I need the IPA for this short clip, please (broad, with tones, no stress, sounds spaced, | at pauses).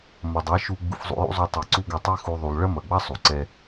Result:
m ɐ˨ dˤ ɛ˨˦ ʃ u˧ ɡ͡b ṵ˧ f zˤ ṵ˧ j ṵ˦ zˤ u˧ tˤ i˨ ǀ u˦ ɡ ɐ˧ tˤ i˦ x u˧ ðˤ u˨ lˠ ɭ ɐ˦ m ɐ˨ ɡ͡b ɐ˦ sˤ u˨ ǀ ɛ˦